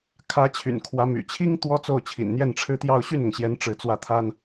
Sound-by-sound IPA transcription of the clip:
kʰ ä˧˥ t͡ɕʰ y̰˨˩ n kʰ w ä˧˥ m y̰˨˩ t͡ɕʰ i˥ ŋ t̪ w ɔ˥ t͡s o˥˩ ʊ̯ t͡ɕʰ ḭ˨˩ n n̪ j ɛ˥˩ n ʈ͡ʂʰ ɻ̩˥ t̪ j ɑ˥˧ ʊ̯ ɕ y˥˩ n ʊ˩ ŋ ɕ j ɛ˧˥ n ʈ͡ʂ ɻ̩˧˥ t͡s w ä˥˩ t̪ʰ a˥ n

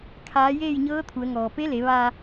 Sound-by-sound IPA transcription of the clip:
kʰ aː˧˥ j eː˥˨ j ɲ ɤː˧˥ t̪ʰ u˩˧ ə̯ ŋ ɔː˩ p e˧˥ l e˩˧ ʋ a˧

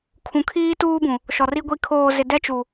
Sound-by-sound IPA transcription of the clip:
kʰ ũ˨ kʰ iː˦ t uː˦ b ũ˨ | ʃ ɔ˨ r i˦ ɡʷ i˦˨ kʰ oː˨ z ɪ˨ d ɛ˦ t͡ʃ u˨

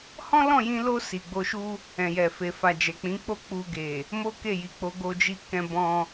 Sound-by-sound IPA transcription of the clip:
h ɔ̃˦ l ɔ̃˦˨ j ĩ˧ l o˧ s i˨ ɡ͡b o˧ ʃ u˦ | ɛ̃˨ j ɛ˨ f e˨ f a˨ d͡ʒ ɛ˨ k͡p ĩ˨˦ k͡p o˦˨ k͡p u˧ ɡ e˨ | m o˦ k e˦˨ j i˨ k͡p o˨˦ ɡ o˧ d͡ʒ i˧ k ɛ̃˧ b ɔ̃˧

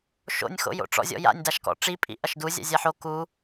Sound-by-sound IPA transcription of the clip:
ʃ o̰ nʲ x o̰ j o̰ ʈ͡ʂ ɔ̰ zʲ ɔ̰ j a̰ nʲ d a ʃ k ɔ̰ ʈ͡ʂ i pʼ ḭ ʔ ɐ ʃ d u zʲ a̰ zʲ a ħ o k u

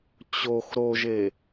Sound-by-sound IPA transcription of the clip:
t͡ɕ o x ɾ o ʒ e

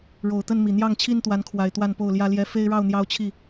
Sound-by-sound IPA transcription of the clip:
ɻ o˨˩ ʊ̯ t̪ ə˥˨ n m i˨˩ n̪ j ɑ˥˨ ŋ t͡ɕʰ i˦ n t̪ w a˨˦ n kʰ w a˨˩ ɪ̯ t̪ w a˥˨ n p o˥˨ ʊ̯ l j ä˦ l j ɛ˦ f e˦ ɪ̯ ɻ ɑ˥˨ ʊ̯ n̪ j ɑ˦ ʊ̯ t͡ɕʰ i˥˨

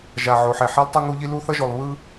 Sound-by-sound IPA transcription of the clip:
ʒ a˨ ʕ o˨ ħ ɛ˨ ħ i˦ lˠ tˤ u˦ ŋ u˦ ʎ i˦ l u˦ θ ʌ˦ ʒ o˨ lˠ β ɯ˦

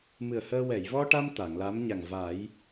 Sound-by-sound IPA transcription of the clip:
m ɨ˨˩ ə̯ h əː˧ w ɛ˨˩˨ j v ɔ˧ ʈ a˧ m t̪ a˨˩˨ ŋ l a˧˥ m ɲ a˨˩ ŋ v a˨˩˦ j

